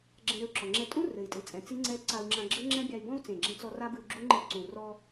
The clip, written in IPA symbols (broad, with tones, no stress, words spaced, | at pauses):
ɡ͡ǁɛ̃˧ɾɘ˧u̯ǁɔ˨˩ŋ͡ǁɛ˧ tʼũ˦˥ rɘ˨˩i̯tʼɨ˨˩t͡sʼɛ̃˨˩ t͡si˦˥ŋ͡ǀɛ˦˥ ǀa˧u̯ŋ͡ǁã˧ɡ͡ǁɘ˦˥ ŋ͡ǁɛ̃˦˥bʲa˧y̯bɔ̃˦˥u̯ t͡sẽ˨˩ɡ͡ǁɛ̃˧t͡sɔ˧ ra˦˥bɨ˧u̯ɡ͡ǁu˦˥ ŋ͡ǃi˧ǀũ˨˩ rɔ˧